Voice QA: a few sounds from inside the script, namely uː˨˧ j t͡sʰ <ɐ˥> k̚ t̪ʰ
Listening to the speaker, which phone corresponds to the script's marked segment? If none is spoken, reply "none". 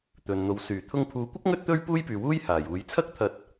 ɐ˥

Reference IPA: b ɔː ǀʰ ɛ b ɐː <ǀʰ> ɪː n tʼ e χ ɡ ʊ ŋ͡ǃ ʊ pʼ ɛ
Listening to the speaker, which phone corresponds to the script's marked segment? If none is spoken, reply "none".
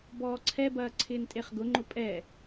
ǀʰ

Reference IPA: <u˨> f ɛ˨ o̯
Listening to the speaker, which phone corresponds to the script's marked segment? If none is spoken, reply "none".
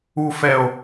u˨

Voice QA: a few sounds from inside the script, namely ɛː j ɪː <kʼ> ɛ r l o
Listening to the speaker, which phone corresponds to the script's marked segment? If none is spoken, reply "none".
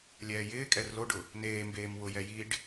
kʼ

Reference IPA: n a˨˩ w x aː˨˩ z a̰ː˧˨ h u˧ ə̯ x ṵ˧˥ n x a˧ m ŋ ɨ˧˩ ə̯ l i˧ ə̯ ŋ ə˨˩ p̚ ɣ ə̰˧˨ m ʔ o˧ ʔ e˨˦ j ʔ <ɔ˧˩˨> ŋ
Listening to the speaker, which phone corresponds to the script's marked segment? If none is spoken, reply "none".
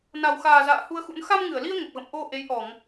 ɔ˧˩˨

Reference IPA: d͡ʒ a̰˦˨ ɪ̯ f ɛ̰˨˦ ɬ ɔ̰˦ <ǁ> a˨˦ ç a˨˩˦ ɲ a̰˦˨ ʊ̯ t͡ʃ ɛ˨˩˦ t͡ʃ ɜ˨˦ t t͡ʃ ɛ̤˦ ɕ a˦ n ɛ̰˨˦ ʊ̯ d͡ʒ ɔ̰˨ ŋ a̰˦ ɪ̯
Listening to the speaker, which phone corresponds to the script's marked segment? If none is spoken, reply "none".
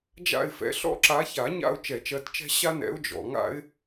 ǁ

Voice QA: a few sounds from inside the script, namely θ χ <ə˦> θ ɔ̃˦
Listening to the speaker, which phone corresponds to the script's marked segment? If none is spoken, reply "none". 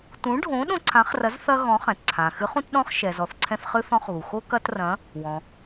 ɨ˦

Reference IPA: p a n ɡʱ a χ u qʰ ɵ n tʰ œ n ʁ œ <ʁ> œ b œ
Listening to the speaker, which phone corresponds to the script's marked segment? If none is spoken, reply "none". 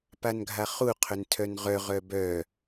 ʁ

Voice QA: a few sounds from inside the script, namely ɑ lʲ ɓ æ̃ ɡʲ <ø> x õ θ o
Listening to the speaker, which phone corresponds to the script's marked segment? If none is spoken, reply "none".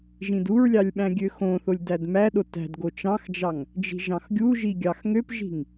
ø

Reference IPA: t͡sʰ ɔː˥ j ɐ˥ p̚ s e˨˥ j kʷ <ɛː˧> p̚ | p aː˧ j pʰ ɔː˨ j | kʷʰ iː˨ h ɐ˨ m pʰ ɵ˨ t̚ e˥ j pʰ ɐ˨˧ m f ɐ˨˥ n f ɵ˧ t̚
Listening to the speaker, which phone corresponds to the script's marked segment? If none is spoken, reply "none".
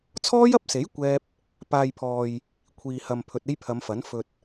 ɛː˥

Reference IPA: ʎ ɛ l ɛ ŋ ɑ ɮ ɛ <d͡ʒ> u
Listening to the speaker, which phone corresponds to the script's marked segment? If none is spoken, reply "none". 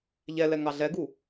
ɡ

